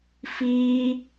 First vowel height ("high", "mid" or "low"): high